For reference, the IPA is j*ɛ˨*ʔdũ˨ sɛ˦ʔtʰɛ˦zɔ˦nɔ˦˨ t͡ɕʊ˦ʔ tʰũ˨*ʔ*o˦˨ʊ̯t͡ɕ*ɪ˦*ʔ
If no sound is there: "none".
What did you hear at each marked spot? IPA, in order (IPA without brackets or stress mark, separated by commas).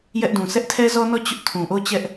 ɛ˦, ʔ, ɛ˦